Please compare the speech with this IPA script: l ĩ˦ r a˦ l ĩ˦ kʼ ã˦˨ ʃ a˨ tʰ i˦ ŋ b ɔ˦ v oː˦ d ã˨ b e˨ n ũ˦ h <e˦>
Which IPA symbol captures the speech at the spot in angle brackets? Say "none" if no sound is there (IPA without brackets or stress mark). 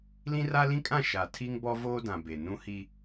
i˦